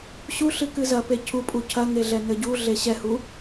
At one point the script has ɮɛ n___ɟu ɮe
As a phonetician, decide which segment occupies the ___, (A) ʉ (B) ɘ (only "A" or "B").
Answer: B